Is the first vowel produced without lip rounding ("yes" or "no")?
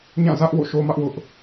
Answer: yes